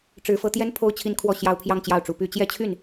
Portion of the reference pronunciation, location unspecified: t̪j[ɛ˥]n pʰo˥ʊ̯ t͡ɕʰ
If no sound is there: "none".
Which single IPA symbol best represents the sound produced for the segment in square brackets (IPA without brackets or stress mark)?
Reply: ɛ˥